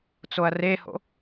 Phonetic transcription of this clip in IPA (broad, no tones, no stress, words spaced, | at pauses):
t͡soɐ̯reho̰